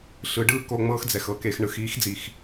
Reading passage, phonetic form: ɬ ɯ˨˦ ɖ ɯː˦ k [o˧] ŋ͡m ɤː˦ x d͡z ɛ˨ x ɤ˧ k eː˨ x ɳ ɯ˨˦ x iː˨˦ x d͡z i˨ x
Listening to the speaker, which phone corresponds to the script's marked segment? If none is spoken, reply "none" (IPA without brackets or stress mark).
o˧